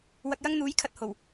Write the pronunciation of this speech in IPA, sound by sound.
w ɐ˨ k̚ j ɐ˧ ŋ n̪ uː˨˧ j kʰ ɐ˨ t̚ h o˨˩ w

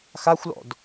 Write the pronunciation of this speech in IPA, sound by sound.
x a xʷ l ɔ̰ d

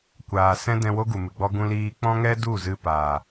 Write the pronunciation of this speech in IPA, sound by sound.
kʷ aː˨ s ɛ̃˦ d ɛ̃˧ w o˦ ɡ u˨ m ɨ˨ ɡ͡b ɔ˦ ɡ ũ˧ l iː˧ k͡p ɔ̃˦ ŋ ɛ˦ d u˦˨ z ɨ˧ p aː˨

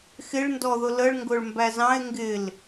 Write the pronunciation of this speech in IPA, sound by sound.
x ɪ ɭ n d ɔ ð ʊ l ə ɭ ŋ ɡ ʊ ɭ m b æ z ɑ̃ e̯ ŋ ɡ ɪ l

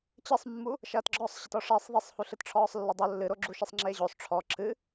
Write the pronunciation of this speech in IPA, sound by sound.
t͡ɕ ɘ sˤ mː u | ʃ ɐː t ɡ͡ǁ ɔ sˤ ɕ ɐ t ɔ ʂ ɛ sˤ ðˤ i sˤ h u ɬ ɨ t ʈ͡ʂʰ ɔː sˤ lː ɐ dˤ o lː ɨ ɾ o ɡ͡ǁ u ʃ e sˤ ŋ͡ǁ eː ʑ o sˤ ʈ͡ʂʰ ɔ ǁ ɨ

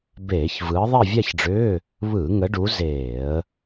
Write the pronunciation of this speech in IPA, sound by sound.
b eː˧˩˧ ç v ɯː˨˦ ðˤ e˥˧ vʲ a˥˧ ç ɖ͡ʐ ʏː˧˥˧ | β ɯː˧˩˧ ŋ ə˨˦ ɖ u˨˦ z eː˧˩˧ ə̯

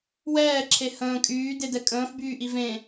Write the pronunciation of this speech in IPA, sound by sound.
w ɛː ǁʰ e h ə̃ː kʼ yː d e d ɛ kʼ ə̃ː f b yː ʔ i v ẽ

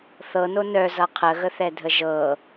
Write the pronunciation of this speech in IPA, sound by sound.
θ ɤ n o n œ z ʌ qʰ ə ɣ ə θ ɛ dʱ ə ʒ ɤ

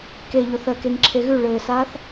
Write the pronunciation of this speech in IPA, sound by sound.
k e ʎ o θ ɜ k e ŋ ǁʰ e ɣ ʉ ɭ ɘː s aː θ

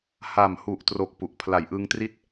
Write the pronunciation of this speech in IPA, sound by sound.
h a˨˩ m h u˨˩ ʔ t r o˨˩ k̚ p u˨˩ ʔ pʰ l a˨˩ j ʔ ɯ˧ ŋ t r i˥˩ t̚

